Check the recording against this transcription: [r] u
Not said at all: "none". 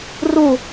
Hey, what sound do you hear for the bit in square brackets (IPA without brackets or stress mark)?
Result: r